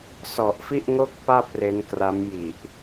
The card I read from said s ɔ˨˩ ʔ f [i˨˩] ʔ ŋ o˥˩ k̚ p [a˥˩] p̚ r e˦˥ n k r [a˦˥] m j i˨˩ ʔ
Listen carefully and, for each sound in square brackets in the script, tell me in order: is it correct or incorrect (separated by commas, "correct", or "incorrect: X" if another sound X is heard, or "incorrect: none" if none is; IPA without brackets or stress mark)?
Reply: incorrect: i˥˩, correct, correct